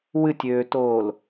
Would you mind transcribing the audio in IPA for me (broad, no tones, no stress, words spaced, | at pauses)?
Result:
wɨtʲøːtoːl